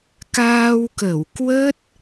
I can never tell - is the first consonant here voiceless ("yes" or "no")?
yes